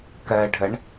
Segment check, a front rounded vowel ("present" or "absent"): absent